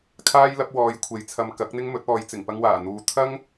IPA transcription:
kʰ aː˥ j l ɐ˨˥ p̚ w ɔː˨ j kʷʰ e˨˧ j t͡sʰ ɐ˧ m k ɐ˨˥ k̚ n̪ ɪ˥ ŋ m ɵ˨˥ t̚ ɔː˨˧ j t͡s ɪ˨˩ ŋ p ɐ˧ ŋ w aː˨˩ n̪ uː˨ t̪ʰ ɐ˥ ŋ

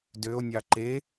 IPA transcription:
d ø o̯ nʲ ɑ ǃ e

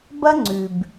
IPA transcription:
b ɐ˦ ŋ͡ǀ ʉ˨ b

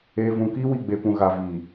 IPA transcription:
eː˨ v ũ˨ k iː˦ w i˨ ɡ͡b e˨ p ũ˨ ɣ a˨ v iː˨

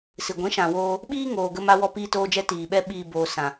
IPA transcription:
s ɨ˨ ɡʷ ĩ˨˦ ʃ ã˨ w oː˧ | ɓ iː˦ ŋ oː˨ ɡ ə˧ m a˧ w ɔ˧ p iː˧ t oː˧ d͡ʒ ɛ˧ t iː˨ ɓ ɛ˦ ɓ iː˧ b oː˨ s ã˨

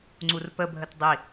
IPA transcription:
ŋ͡ǀ u r p ə bʱ ə t dˤ i

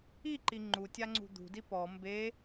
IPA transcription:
i ǃ i ŋ͡ǃ u tʲ a ŋ͡ǀ ṳ d̪ ṳ d i p ɔ m b e

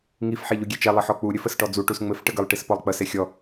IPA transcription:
ŋ i f ħ e ʎ u ɡʲ e t͡ʃ ɛ lˠ ə ħ ɔ k͡p u ɾʲ ɘ f ə s ʈ ɔ d͡z u ʈ u s ŋ͡m ɘ f ʈ ə ɡ ə lˠ ʈ i s p ɔ lˠ k͡p ə s e xʲ ɔ

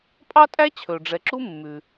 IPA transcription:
pʼ ɑ˥ tʼ æ˥ t͡ɕʰ ɵ˩ ɖ͡ʐ ɛ˩ ǁ u˥ mː ʉ˩

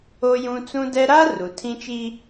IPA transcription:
o˦ j ũ˦ t͡s ũ˦ d ɛ˦ ɾ a˦ r u˨ tʰ ĩ˦ t͡ʃ iː˦

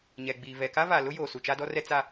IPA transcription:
ɲ ɛ˨ ɡ͡b iː˨ v ɛ˨ k a˦ v a˨ l ʊ˦ j oː˨ s u˨ t͡ʃ a˦ d ɔ˦ r ɛ˦ t͡s a˦

